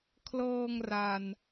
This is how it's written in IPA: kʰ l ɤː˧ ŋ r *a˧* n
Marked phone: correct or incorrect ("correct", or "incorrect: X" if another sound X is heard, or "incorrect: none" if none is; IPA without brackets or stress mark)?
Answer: incorrect: a˨˩